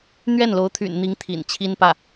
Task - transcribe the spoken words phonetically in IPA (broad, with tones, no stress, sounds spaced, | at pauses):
n̪ ɥ ɛ˥˩ n l o˧˥ ʊ̯ t̪ʰ y̰˨˩ n n̪ i˧˥ ŋ t̪ʰ ḭ˨˩ n t͡ɕʰ i˥ n p ä˥˩